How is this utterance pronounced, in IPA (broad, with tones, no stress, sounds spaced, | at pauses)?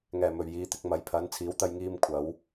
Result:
ŋ ɛː˨˩ m ɵ˨˩ ɥ j iː˨˧ t̪ ɪ˨ k̚ m ɐ˨ j pʰ ɐ˨˥ n t͡sʰ iː˨˥ w t̪ ɐ˧ j ŋ iː˧ m kʷʰ ɐ˨˥ w